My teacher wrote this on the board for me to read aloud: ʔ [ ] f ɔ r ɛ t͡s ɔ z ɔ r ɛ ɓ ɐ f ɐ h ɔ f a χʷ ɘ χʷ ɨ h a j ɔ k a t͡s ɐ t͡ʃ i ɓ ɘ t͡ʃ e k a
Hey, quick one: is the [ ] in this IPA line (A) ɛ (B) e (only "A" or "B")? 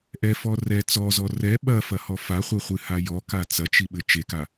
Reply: A